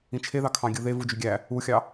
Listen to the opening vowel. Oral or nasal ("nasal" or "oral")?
nasal